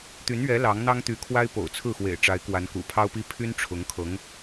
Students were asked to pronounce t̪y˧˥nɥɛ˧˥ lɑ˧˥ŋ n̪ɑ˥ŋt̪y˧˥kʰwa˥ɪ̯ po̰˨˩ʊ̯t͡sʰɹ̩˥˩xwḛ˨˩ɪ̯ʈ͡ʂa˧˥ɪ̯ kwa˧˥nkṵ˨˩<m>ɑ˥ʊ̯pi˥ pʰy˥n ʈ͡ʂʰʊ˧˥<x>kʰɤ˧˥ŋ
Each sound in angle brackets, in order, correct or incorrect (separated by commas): incorrect, incorrect